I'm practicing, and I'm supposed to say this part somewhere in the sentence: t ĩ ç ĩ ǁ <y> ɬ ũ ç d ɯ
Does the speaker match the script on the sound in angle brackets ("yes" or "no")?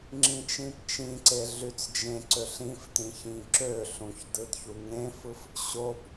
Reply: no